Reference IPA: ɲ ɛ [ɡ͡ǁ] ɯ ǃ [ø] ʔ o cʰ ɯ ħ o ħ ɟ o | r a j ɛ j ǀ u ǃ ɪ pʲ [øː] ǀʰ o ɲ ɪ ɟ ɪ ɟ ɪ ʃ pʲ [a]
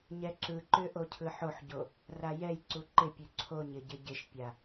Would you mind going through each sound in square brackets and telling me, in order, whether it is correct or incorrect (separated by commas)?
incorrect, correct, incorrect, correct